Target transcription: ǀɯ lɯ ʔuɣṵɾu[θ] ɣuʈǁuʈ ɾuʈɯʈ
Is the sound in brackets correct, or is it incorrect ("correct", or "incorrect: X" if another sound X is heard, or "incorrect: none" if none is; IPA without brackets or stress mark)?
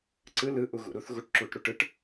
correct